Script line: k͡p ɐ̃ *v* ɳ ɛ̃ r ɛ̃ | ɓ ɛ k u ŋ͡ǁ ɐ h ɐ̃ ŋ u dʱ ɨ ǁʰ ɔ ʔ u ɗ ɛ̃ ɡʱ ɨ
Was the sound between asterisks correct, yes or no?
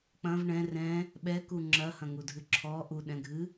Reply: yes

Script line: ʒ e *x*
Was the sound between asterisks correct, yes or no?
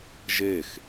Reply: yes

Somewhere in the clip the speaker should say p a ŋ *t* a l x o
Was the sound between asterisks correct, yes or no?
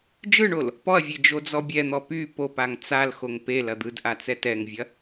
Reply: no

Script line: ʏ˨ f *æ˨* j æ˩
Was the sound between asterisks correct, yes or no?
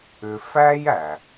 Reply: no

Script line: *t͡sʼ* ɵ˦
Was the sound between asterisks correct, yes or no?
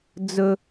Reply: no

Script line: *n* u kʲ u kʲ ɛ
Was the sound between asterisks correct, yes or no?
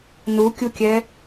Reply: yes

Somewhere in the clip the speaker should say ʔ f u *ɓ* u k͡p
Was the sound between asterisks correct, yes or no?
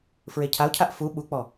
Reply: yes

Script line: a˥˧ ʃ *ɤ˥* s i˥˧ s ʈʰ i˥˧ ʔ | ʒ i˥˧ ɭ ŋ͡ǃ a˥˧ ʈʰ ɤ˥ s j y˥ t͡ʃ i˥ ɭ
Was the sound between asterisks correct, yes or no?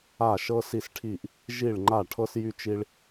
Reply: yes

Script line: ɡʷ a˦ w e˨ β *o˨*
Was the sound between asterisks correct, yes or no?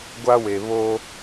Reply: no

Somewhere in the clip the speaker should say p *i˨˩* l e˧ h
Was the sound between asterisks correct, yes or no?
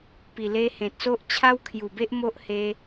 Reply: yes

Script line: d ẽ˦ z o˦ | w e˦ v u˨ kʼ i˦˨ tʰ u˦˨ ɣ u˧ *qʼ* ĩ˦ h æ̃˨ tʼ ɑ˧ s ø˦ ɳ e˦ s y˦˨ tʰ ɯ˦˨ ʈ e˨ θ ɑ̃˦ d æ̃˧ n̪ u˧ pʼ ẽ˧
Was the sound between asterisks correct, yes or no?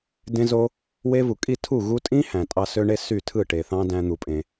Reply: no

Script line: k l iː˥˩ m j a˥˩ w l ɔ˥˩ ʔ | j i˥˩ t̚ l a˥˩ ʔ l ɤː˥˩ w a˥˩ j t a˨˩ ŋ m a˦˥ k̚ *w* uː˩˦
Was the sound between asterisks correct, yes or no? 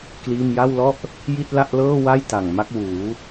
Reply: yes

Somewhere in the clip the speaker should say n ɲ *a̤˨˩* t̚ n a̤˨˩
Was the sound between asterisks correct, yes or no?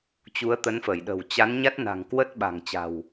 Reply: no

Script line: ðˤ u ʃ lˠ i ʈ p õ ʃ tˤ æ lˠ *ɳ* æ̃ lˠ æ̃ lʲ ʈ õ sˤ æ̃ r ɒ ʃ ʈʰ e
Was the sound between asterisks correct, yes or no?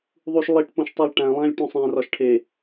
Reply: no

